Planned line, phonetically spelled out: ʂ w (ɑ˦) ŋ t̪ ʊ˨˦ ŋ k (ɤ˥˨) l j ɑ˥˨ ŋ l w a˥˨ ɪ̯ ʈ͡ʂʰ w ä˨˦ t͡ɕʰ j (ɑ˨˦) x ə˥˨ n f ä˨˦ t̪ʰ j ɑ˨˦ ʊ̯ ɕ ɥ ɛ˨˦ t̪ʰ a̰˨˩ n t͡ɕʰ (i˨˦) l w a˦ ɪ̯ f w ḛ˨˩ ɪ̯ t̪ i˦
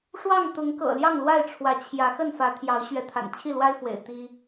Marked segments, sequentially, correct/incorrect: incorrect, incorrect, incorrect, incorrect

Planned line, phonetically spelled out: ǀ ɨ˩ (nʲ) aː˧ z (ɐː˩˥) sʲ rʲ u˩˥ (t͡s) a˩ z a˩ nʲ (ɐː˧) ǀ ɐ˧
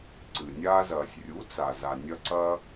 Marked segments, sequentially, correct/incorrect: correct, incorrect, correct, incorrect

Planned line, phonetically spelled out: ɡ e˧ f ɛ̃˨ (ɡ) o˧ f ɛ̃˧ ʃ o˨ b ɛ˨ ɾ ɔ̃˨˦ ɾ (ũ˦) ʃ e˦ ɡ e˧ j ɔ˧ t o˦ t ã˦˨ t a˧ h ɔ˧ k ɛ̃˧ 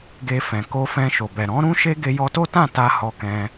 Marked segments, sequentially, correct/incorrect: incorrect, correct

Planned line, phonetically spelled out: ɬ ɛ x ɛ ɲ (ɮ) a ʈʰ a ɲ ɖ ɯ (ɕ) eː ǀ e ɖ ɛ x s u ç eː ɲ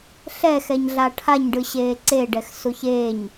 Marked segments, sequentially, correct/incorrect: correct, correct

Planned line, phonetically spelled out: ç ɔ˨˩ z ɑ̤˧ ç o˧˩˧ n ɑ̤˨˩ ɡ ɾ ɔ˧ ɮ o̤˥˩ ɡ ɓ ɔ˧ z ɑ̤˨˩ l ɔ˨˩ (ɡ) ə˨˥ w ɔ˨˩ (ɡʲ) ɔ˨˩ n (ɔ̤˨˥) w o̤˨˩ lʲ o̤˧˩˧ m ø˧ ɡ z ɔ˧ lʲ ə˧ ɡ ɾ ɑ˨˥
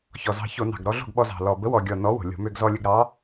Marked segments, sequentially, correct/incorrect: incorrect, correct, incorrect

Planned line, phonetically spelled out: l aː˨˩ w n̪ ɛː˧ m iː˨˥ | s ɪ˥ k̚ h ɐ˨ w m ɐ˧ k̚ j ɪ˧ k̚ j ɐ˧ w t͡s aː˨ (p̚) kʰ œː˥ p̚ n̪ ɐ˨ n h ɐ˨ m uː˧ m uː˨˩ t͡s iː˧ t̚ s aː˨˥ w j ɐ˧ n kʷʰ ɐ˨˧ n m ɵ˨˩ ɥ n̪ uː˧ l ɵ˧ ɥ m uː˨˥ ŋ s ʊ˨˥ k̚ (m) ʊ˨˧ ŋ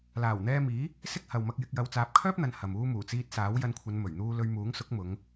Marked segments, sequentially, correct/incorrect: correct, correct

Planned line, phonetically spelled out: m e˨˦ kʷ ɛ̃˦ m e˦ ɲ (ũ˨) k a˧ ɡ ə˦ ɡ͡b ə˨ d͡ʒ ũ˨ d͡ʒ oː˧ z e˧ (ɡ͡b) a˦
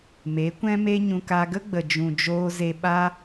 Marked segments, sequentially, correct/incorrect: incorrect, incorrect

